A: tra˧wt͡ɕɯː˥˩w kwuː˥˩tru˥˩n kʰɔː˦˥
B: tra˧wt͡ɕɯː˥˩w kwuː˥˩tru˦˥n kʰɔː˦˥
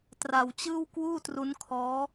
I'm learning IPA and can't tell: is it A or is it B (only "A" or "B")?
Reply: B